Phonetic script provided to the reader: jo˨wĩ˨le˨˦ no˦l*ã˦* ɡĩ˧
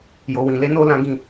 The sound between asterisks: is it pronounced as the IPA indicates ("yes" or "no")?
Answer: yes